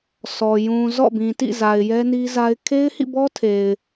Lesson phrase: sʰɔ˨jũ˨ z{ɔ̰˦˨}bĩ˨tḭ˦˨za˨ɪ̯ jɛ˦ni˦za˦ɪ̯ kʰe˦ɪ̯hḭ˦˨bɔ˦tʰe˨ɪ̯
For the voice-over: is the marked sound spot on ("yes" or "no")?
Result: yes